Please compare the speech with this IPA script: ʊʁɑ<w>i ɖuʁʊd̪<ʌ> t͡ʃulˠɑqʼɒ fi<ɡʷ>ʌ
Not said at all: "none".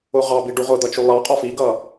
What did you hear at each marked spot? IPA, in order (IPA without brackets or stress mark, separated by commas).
b, ʌ, ɡ